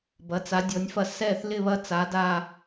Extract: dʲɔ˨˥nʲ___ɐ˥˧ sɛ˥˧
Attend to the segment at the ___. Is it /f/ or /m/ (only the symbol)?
f